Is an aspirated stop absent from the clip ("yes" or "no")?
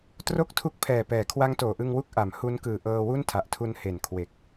no